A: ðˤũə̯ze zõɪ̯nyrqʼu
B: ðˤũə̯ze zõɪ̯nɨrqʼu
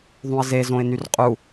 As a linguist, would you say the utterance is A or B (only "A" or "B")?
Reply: A